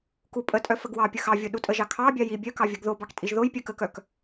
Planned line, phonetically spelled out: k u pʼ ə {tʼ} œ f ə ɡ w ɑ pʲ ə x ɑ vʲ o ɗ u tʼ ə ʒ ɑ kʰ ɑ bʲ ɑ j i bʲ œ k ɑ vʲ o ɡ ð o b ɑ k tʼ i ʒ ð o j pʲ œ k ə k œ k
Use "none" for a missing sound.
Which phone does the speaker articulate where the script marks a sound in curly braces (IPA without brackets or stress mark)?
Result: tʼ